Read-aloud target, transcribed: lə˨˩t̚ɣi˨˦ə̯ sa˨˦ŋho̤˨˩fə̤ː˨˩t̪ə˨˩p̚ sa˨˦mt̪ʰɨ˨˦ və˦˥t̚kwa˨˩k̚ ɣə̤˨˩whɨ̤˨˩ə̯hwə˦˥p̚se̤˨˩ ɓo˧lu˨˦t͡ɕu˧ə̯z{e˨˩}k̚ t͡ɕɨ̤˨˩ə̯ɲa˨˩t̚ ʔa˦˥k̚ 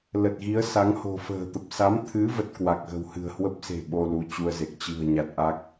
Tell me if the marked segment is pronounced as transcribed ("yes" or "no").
yes